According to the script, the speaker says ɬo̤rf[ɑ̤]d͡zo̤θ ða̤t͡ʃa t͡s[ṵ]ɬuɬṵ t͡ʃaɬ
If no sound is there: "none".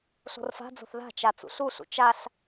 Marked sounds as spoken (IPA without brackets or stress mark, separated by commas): a̤, ṵ